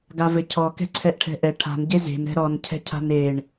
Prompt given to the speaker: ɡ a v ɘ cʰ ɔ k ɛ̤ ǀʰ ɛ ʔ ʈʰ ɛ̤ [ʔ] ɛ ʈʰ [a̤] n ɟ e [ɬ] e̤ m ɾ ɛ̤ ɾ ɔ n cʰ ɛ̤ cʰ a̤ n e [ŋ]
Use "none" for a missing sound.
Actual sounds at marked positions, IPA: ʔ, a̤, z, ɳ

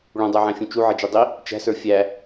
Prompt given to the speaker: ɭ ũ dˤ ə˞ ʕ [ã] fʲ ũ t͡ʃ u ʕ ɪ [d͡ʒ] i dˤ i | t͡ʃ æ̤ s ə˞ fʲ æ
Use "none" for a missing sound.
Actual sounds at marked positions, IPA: æ̃, d͡ʒ

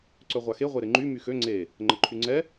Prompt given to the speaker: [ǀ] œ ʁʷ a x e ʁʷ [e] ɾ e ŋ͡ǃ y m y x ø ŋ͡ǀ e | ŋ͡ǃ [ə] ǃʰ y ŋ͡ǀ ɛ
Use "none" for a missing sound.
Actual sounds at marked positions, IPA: ǀ, e, ə

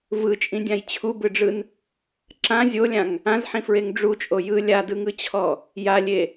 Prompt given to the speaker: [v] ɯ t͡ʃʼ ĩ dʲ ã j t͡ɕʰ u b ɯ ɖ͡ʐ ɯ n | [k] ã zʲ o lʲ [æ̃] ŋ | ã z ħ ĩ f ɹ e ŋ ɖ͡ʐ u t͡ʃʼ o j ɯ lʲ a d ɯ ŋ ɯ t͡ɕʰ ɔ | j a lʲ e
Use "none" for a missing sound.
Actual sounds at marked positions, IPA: v, ǁ, ã

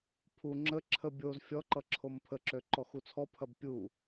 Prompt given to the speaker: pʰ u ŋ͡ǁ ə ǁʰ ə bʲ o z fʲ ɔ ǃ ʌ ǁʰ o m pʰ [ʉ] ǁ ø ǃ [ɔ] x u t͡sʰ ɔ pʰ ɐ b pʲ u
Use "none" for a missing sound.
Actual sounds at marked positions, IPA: ə, ɔ

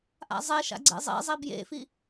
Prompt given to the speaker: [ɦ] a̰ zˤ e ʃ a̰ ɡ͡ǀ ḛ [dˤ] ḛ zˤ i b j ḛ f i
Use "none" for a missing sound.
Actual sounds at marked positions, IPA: ʔ, zˤ

